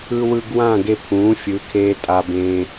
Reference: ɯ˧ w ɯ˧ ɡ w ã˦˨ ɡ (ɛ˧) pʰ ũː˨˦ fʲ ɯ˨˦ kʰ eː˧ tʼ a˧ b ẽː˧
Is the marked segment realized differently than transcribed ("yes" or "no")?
yes